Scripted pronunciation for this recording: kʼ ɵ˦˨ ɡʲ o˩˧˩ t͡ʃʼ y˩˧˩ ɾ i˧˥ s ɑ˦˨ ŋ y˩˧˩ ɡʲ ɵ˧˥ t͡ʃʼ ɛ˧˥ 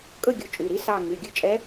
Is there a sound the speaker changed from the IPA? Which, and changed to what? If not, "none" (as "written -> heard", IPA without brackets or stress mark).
none